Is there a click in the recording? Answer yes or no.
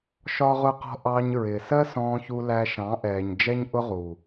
no